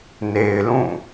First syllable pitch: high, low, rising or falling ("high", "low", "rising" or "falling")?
low